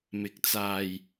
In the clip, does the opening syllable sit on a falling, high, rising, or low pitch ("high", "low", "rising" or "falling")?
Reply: rising